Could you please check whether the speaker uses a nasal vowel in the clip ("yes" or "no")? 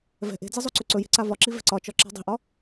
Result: no